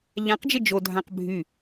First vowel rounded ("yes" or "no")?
no